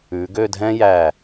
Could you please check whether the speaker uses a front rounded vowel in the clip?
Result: yes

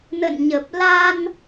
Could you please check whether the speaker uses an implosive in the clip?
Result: no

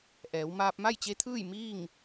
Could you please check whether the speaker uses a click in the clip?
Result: no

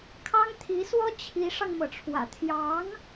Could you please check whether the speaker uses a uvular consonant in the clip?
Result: no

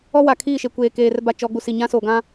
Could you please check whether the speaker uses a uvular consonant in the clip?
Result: no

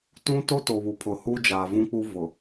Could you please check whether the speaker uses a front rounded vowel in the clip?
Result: no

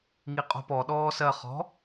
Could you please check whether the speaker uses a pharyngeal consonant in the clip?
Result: no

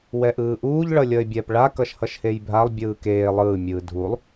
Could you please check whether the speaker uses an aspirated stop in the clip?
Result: no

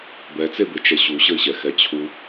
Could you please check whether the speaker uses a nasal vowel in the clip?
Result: no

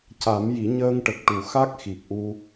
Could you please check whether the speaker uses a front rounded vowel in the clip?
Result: no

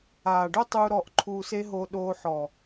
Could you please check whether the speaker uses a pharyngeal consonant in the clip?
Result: yes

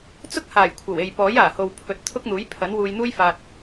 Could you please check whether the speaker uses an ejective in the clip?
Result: no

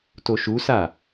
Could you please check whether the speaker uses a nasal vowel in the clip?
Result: no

